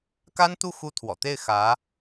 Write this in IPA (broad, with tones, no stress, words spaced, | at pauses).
ka˥nt̪u˥˩ xu˥t̪ʰwɔ̰˨˩ t̪e˥˩ɪ̯ xä˧˥